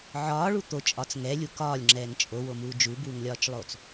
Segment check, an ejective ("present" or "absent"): present